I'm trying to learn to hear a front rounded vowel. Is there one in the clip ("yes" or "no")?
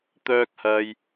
yes